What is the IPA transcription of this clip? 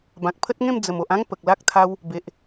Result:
b ã˨ k̚ pʰ ə˦ t̚ ŋ ẽ˥˧ m d͡z ə˨˩ m o˨ ʔ ã˦ ŋ p ə˨ k̚ l a˦ k̚ t̪ʰ a˦ w | b e˨ ʔ

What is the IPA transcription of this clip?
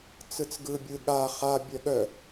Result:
t͡s ɯ t͡s ɡ ɯ bʲ ɯ ɠ a χ a bʲ œ ɠ œ

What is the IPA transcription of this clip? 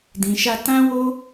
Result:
d ĩ˧ ʃ a˦ t ã˦ w o˦

